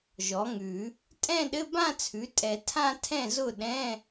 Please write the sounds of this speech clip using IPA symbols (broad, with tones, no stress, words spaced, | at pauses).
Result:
ʒɔ˩˥ŋʉ˨˩˦ | tʼɛ̃˥˧ɗɘ˧˥˧ bã˥˧t͡sʰʉ˩˥tʼɛ˨˩˦ tʰã˥˧tʰɛ̃˥˩zʊ˥˩ ɗɛ̃˧˥˧